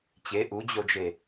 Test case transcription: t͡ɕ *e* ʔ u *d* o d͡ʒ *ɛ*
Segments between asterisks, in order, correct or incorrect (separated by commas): correct, incorrect, incorrect